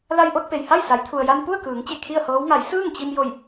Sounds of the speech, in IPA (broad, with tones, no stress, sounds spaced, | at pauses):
l a˧ j ʔ o˧ t̚ p e˩ j h a˥˨ j s a˩˧ j t̪ʰ u˩ ə̯ j a˧ n p u˥˨ ə̯ k ɯː˩˧ ŋ t͡ɕ e˧˩ kʰ i˥˨ ə̯ h ɤː˧˥ w ŋ a˩˧ j s ɯː˥˨ ŋ t͡ɕ i˧ m j o˧˩ j